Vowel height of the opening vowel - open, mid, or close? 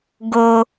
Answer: mid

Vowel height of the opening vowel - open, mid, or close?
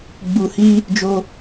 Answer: close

